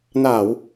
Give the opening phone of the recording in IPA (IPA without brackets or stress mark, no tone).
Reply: n